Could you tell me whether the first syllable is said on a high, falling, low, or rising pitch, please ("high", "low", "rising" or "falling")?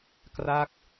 falling